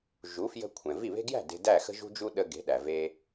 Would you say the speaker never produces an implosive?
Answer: no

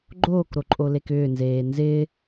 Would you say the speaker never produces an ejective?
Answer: no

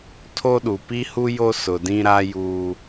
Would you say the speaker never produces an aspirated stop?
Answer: no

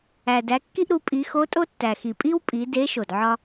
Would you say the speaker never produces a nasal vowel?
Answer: yes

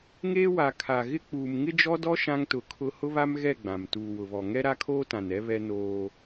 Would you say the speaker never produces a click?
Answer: yes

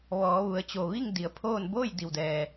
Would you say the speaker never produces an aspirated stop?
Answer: no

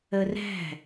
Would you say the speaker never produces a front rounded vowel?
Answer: yes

